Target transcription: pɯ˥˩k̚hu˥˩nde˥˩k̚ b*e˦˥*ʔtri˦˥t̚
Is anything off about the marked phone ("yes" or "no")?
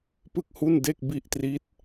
yes